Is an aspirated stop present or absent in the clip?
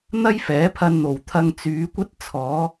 present